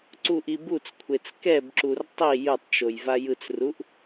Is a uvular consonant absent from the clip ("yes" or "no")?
yes